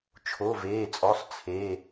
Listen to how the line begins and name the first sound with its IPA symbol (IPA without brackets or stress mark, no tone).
t͡ʃʰ